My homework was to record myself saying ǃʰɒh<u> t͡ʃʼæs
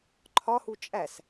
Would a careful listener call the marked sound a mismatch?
no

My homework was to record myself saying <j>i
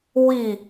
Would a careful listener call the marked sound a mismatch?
yes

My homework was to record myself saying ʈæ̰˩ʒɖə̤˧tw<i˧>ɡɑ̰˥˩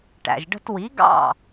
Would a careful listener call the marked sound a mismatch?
yes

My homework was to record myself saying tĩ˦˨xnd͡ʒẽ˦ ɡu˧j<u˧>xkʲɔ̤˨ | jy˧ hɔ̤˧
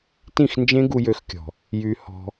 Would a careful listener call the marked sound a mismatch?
yes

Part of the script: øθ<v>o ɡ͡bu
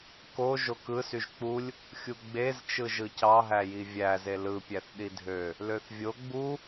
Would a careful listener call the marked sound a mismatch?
yes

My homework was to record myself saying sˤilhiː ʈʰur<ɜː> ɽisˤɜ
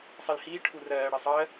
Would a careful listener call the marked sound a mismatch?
no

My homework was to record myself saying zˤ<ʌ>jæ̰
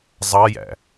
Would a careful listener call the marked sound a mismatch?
no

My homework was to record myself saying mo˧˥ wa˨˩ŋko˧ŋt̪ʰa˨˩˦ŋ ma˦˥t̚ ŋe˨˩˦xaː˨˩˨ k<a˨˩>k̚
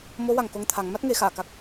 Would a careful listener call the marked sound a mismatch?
no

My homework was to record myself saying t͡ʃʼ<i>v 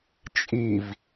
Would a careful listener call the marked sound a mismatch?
no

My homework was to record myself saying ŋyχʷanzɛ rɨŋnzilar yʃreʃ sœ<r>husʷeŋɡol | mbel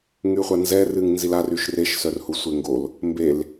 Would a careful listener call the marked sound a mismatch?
no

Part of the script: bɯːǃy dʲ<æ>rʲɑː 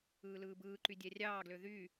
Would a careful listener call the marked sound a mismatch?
no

